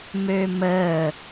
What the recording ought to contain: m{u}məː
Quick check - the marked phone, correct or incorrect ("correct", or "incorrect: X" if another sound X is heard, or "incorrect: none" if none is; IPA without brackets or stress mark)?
incorrect: ø